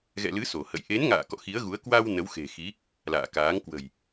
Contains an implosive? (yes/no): no